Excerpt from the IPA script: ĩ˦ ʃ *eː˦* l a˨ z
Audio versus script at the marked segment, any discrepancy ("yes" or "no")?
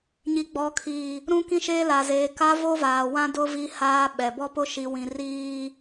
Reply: no